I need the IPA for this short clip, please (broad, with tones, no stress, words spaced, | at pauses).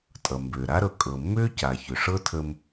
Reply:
tʼʌ˩mbʏː˩ɾa˥ɾɤ˩ kʼɤ˩mːʏː˥ca˩ çʏ˩ʂɤ˥tʰə˧m